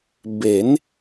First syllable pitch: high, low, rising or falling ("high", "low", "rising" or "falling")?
rising